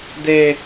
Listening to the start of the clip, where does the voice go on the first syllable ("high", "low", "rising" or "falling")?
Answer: high